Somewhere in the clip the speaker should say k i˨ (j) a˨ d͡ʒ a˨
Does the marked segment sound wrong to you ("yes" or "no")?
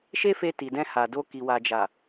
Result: yes